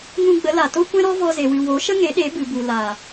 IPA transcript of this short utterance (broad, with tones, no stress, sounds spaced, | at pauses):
ŋ ũ˧ ɡ͡b ə˨˦ l a˨ t o˦ kʷ ɛ̃˦ ɾ ɔ˦ v ɔ˧ z e˨ w ɨ˨ w o˨˦ ʃ ə˦ ŋ e˨˦ ɗ e˨˦ b ɨ˨ b u˨ l a˨